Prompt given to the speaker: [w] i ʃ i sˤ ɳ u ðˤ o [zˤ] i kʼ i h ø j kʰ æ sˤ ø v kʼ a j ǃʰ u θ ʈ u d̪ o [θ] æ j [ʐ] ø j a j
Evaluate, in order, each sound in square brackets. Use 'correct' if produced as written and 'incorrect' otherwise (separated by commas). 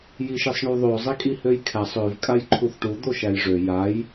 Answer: incorrect, correct, incorrect, correct